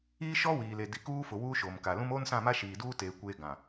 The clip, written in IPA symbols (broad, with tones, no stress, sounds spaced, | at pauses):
iː˦ ʃ ɔ˦ w iː˨ l e˨ d i˨ k uː˦ f ʊ˨ w uː˦ ʃ oː˨ m k a˨ l ũ˦ m oː˦ n s ã˦˨ m a˦ ʃ iː˨ d uː˦ t eː˨ kʷ eː˦ ɡ ã˨